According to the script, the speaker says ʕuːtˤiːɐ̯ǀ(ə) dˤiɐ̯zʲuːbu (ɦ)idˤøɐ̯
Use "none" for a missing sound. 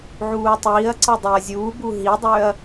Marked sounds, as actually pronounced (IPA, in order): ə, ɦ

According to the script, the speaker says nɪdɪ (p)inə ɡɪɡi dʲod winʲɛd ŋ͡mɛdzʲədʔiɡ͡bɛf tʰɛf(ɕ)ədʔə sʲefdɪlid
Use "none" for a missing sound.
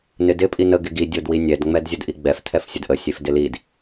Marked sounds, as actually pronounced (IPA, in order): pʼ, sʲ

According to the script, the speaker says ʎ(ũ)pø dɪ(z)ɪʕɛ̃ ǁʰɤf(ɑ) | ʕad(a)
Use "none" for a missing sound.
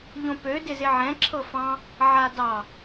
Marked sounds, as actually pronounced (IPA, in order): õ, z, ɑ̃, ɑ

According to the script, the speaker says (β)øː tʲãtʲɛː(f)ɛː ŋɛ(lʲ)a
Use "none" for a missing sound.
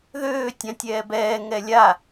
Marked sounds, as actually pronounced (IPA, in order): ð, b, lʲ

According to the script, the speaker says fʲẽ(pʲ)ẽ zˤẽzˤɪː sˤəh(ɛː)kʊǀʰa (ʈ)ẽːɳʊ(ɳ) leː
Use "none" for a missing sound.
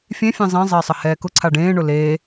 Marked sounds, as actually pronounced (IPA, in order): fʲ, ɛː, ɖ, none

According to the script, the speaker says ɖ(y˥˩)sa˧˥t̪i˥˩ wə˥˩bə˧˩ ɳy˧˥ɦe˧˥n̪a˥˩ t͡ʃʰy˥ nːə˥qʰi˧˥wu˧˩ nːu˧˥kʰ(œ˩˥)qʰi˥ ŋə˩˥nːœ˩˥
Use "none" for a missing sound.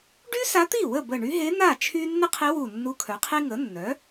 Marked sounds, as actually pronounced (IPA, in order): y˥, œ˩˥

